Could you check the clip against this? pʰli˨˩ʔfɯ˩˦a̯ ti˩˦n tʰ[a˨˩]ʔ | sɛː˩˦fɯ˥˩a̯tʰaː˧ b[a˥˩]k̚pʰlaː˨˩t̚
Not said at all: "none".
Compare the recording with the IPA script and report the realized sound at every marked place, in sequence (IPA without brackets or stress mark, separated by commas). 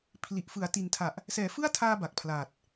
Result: a˨˩, a˨˩